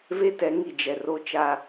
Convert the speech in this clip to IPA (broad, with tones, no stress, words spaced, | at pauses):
ve˦tɛ˨˦ ŋi˨d͡ʒɛ˨ ro˦t͡ʃa˦